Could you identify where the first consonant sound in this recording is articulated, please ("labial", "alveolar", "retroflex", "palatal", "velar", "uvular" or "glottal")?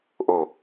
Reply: glottal